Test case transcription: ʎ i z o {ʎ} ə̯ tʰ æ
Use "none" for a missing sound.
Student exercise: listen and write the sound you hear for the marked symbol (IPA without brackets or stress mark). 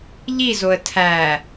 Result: none